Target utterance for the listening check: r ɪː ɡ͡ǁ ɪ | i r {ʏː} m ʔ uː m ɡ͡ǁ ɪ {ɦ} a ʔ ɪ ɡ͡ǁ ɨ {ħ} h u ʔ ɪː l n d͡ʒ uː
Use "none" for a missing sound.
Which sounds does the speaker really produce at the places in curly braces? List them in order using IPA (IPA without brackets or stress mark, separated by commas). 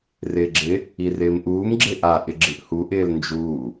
ɪː, ʔ, ʔ